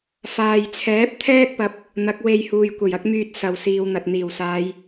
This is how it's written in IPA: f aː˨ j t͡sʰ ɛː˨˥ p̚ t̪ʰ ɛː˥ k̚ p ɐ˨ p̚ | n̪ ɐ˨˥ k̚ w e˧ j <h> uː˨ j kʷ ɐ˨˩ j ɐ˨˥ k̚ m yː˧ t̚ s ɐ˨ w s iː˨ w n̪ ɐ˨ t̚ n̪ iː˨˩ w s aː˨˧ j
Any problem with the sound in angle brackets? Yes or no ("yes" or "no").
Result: no